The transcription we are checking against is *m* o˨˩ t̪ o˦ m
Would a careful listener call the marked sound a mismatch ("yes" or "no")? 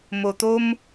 no